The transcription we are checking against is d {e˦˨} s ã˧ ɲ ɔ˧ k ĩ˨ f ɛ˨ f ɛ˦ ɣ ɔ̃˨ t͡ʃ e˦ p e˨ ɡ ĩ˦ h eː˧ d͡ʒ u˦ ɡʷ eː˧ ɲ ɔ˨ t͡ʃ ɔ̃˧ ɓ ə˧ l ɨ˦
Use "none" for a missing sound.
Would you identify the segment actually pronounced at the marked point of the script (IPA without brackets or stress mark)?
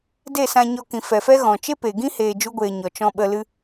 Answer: e˦˨